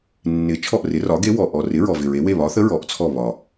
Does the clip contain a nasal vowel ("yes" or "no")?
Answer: no